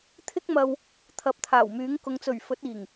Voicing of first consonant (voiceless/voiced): voiceless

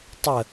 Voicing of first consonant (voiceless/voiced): voiceless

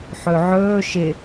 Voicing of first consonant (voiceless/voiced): voiceless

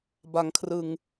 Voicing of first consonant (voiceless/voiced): voiced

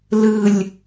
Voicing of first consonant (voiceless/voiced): voiced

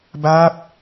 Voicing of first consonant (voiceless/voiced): voiced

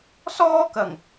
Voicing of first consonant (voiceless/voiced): voiceless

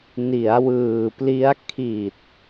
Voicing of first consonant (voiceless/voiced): voiced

